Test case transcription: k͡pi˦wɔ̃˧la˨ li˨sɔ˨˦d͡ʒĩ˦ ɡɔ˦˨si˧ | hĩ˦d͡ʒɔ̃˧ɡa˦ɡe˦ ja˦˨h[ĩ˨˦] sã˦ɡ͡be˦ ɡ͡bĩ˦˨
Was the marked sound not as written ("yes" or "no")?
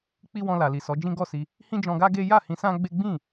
yes